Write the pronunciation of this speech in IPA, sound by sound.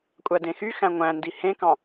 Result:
kʷʼ æ d ẽ x y x æ̃ ŋʷ æ̃ n d i h ẽ k ɑ̃

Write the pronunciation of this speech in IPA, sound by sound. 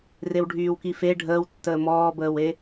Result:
r e w ɖʱ yː w k i f e ɖʱ əː w tː əː m ɔː b əː w e

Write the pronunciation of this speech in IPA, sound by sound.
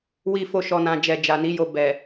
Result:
w i˨ f o˨ ʃ ɔ˨ n ã˨ d͡ʒ ɛ˨ d͡ʒ a˨ n i˨˦ j o˧ b ɛ˨

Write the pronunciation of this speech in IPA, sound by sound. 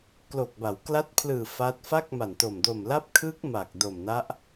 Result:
k l o˨˩ k̚ b a˩˦ w k l a˦˥ t̚ pʰ l ɯː˨˩ f a˦˥ t̚ f a˥˩ k̚ m a˨˩ n t o˨˩ m d o˨˩ m l a˦˥ p̚ kʰ ɯː˦˥ k̚ m a˨˩ k̚ d o˨˩ m n a˦˥ ʔ

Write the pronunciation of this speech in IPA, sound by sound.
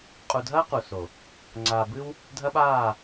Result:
qʼ u˨ dʱ ɐː˦ q u˨ s o˨ | ŋ͡ǀ aː˨ b ɨ˦ w | dʱ ɐ˦ ɓ aː˦˨

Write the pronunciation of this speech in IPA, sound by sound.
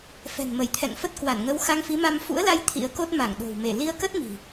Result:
f ɛ̤˨˩ n m ə˧˩ j t̪ʰ ɛ̰˧˨ ŋ f ə˦˥ t̚ k w a˧˩ n ŋ ə˧ w x a˧ ŋ f i˨˦ m a˧ m f ṵ˧˥ ə̯ l a˧ j t̪ʰ ḭ˧˥ ə̯ k o˦˥ t̚ m a˧˩ ŋ ɗ o̤˨˩ w m e˧˩ l i˧ ə̯ k ə˦˥ t̚ m i̤˨˩

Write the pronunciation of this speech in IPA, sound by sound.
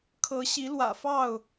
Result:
kʰ ɤ˨˦ ɕ i˨˦ l w ä̰˨˩ f ɑ˥˨ ʊ̯

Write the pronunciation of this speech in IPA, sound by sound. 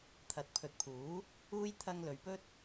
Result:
t̪ʰ ɐ˨ t̚ pʰ ɵ˨ t̚ pʰ uː˨˥ | uː˥ j t̪ʰ ɐ˧ ŋ l ɵ˨ ɥ p ɵ˥ t̚

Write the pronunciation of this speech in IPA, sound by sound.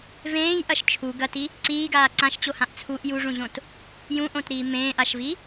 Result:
v ẽː j ʔ ɐ ʃ t͡ʃʰ u ɡ ɐ t i | ǀ iː ɡ aː ǀ ã ʃ t͡ɕ o h ã ʔ t͡sʰ u ʔ j u ʐ ũ ʑ õ t | j ũ ʔ õ t ɾ iː m ẽː ʔ a ʃ v i

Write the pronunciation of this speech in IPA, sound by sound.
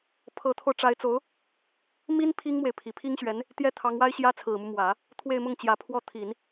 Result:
pʰ ɤ˧˥ t̪ʰ o˧ ʊ̯ ʈ͡ʂ a˧˥ ɪ̯ t͡s o˧˥ ʊ̯ | m i˥ n pʰ i˥ ŋ m w e˨ ɪ̯ pʰ i˨˩ pʰ i˥ ŋ ɕ ɥ ɛ˧˥ n | t̪ j ɛ˥˩ t̪ʰ ɑ˧˥ ŋ w a˥ ɪ̯ ɕ j ä˥ t͡sʰ ɹ̩˨˩ m u˦ m w ä˨˩˦ | t̪ʰ w e˥˧ ɪ̯ m ʊ˥˩ ŋ t͡ɕ j ä˧˥ pʰ w ɔ˥˩ t̪ʰ i˨˩˦ n

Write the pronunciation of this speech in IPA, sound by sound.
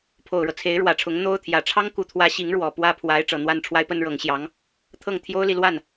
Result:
pʰ o˨˩ ʊ̯ ɻ ɤ˦ t͡sʰ e˧˥ ɪ̯ ɻ w ä˨˩ ʈ͡ʂʰ ʊ˧˥ ŋ n̪ o˥ ʊ̯ t̪ʰ j ä˨˩ ʈ͡ʂʰ ɑ˥ ŋ k u˨˩ t̪ʰ w ä˧˥ ɕ i˧˥ ŋ ɻ w ɔ˨˩ p w ä˥˩ pʰ w a˧˥ ɪ̯ ʈ͡ʂ ɤ˨˩ n̪ w a˥˩ n ʈ͡ʂʰ w a˥ ɪ̯ p ə˥ n ɻ ɤ˧˥ ŋ ɕ j ɑ˧˥ ŋ | t̪ʰ ɤ˥˩ ŋ t̪ʰ j o˥ ʊ̯ l i˨ l w a˥˩ n

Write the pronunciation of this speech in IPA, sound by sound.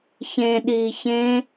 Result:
ç ẽ ɗ iː ç ẽ

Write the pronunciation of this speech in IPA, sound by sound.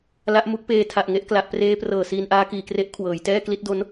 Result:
l a˦˥ ʔ m u˦˥ k̚ p eː˧ tʰ a˨˩ ʔ ŋ e˥˩ ʔ k l a˨˩ ʔ p r eː˦˥ p r ɤː˨˩ s iː˧ n ʔ aː˦˥ k iː˨˩ k r e˦˥ ʔ kʰ w ɤː˩˦ j t ɛː˥˩ k l i˦˥ t̚ d o˦˥ n

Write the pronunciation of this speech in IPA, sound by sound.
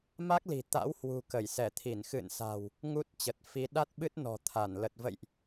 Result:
m a˦˥ k̚ l i̤˨˩ t̪ a̰˧˥ w h w ṳ˨˩ k ə˧˩ j s ɛ˧˩ t̪ʰ i˧˩ n x ɨ̰˧˨ n s a̤˨˩ w | ŋ u˦˥ t̚ t͡ɕ ə˨˩ t̚ f i˨˦ ɗ a˦˥ t̚ ɓ ɨ˦˥ t̚ n ɔ̤˨˩ t̪ʰ a˧˩ n l ə˨˩ t̚ v ə̰˧˨ j ʔ

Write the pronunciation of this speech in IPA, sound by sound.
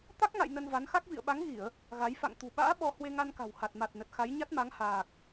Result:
t̪ a˦˥ k̚ ŋ a̰˧˨ j n ə˧ n v a˨˦ n x a˦˥ k̚ v ḭ˧˨ ə̯ ɓ a˨˦ ŋ ɣ i˧˩˨ ə̯ | ɣ a˨˦ j f a̰˧˨ ŋ t̪ ṳ˨˩ ɓ a̰ː˧˥ ɓ ɔ˧ h w e˧ ŋ a˧ n k a̤˨˩ w h a˨˩ t̚ m a˨˩ t̚ n ə˨˩ t̚ x a˨˦ j ɲ a˦˥ t̚ m a˨˦ ŋ h aː˨˩ k̚

